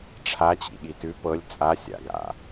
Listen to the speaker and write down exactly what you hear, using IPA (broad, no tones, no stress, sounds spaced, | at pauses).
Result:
ʈ͡ʂʰ a t͡ɕ ḭ ɠ i t ʉ p ɤ lʲ t͡sʼ a sʲ a̰ ɡ a̰